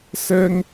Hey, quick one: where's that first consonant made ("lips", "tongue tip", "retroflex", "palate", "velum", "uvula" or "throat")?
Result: tongue tip